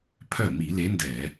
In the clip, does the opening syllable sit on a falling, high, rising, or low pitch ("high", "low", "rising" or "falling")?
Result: falling